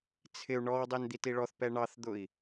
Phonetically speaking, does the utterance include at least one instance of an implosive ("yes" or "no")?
no